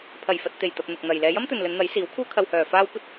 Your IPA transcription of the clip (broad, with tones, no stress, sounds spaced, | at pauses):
pʰ ɐ˨˩ j f ɐ˨ t̚ t̪ e˨˩ j t̪ ɐ˨ p̚ n̪ ʊ˨ k̚ n̪ ɐ˨ j l ɛː˨˧ j ɐ˥ m t̪ ɵ˨ n l ɵ˨˧ n n̪ ɐ˨˥ j s iː˨˥ w kʰ uː˥ kʰ ɐ˧ w h œː˨ f aː˥ w kʷ ɐ˥ t̚